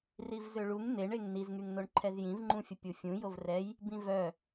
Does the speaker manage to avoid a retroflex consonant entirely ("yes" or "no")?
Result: no